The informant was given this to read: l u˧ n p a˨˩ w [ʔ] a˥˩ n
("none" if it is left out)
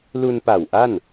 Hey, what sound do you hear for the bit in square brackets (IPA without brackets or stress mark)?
ʔ